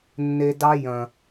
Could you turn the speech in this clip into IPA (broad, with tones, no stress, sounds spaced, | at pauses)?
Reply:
nː e˧ d ɑ˦ j ɐ̃˨